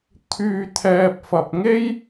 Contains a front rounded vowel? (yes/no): yes